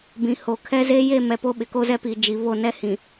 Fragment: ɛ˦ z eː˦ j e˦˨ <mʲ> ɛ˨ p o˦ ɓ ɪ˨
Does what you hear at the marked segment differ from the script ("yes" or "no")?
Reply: yes